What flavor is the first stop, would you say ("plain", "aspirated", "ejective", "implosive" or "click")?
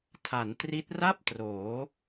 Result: aspirated